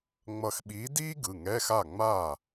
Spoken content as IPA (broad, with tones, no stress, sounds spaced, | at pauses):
ŋ͡m ʌ˧˩ x ɓ iː˨˥ d iː˥ ɡ ɯ˩˧˩ ŋ ɛ˧˥˧ x a˥˩ ŋ͡m aː˥˩